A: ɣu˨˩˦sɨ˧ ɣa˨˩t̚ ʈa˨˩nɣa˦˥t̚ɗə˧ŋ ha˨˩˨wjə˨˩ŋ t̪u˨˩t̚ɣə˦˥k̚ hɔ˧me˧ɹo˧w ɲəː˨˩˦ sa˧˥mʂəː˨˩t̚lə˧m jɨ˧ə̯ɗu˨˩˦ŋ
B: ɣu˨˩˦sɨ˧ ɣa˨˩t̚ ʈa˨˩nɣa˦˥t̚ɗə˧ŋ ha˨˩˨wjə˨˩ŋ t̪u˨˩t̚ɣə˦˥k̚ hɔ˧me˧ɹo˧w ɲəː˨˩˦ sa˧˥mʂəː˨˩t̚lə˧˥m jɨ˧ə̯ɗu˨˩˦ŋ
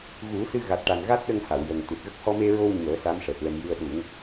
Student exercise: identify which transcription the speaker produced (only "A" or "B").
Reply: A